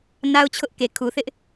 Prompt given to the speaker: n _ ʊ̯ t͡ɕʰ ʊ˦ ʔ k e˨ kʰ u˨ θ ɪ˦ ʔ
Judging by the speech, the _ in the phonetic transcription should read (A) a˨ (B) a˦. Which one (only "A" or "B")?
B